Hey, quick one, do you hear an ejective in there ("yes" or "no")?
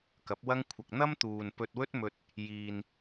no